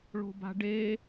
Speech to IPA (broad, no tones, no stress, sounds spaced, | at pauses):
ɭ o̤ b a̤ ɖ e